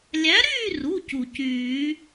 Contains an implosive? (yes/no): no